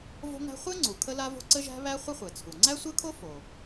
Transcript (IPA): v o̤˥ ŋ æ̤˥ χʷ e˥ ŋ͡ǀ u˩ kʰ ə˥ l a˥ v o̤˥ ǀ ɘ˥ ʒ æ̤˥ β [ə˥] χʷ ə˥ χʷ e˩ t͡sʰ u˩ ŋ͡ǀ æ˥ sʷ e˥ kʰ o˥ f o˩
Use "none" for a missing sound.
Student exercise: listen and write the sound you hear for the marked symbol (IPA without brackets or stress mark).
æ˥